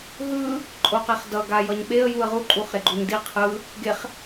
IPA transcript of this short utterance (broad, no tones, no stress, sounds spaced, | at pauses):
ɦ ɯ | ǃʼ o q e χ d ʌ ɡ a j ʌ ɲ ɓ e ə̯ j u ə̯ ʁ u ǃʼ u χ ɾ e ɡ͡ǃ u ɲ d i qʰ ɯ | ɡ e χ